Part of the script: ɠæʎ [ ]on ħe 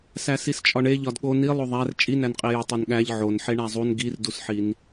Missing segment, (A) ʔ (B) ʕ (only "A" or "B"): B